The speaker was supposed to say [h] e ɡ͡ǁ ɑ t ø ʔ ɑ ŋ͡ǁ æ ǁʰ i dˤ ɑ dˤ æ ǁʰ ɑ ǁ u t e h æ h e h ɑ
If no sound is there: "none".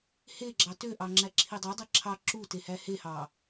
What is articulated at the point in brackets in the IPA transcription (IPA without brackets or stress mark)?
h